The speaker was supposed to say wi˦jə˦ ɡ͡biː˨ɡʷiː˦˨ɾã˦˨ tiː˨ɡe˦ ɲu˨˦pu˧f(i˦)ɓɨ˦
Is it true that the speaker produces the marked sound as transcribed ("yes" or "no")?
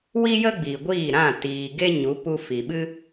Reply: no